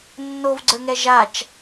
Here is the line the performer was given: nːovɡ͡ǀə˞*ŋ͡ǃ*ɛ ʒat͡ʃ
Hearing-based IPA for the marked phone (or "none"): ŋ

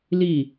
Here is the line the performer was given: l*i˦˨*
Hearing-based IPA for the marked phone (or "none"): i˦˨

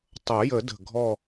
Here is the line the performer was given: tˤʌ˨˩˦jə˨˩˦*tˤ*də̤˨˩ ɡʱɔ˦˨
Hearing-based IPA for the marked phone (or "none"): none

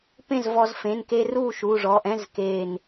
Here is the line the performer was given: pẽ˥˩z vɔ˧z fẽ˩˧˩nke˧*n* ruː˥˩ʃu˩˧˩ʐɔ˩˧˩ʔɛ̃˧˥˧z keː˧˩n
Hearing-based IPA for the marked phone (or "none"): none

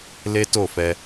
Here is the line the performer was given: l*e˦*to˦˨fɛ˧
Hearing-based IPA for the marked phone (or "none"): e˦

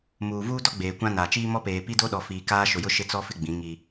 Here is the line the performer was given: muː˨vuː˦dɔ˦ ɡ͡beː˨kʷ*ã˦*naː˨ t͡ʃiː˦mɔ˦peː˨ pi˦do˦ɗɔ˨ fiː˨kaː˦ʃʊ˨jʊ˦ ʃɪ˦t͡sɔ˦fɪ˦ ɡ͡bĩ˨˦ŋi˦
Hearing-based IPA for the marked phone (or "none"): ã˦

